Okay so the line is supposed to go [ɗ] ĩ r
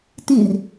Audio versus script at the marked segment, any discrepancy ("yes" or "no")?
yes